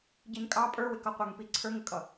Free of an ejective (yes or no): no